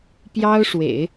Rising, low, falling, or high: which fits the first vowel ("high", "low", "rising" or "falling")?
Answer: high